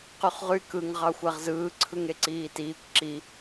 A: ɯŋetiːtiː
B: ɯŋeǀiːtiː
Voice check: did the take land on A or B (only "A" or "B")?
B